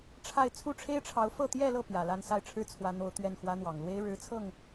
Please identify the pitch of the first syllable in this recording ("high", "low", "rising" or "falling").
falling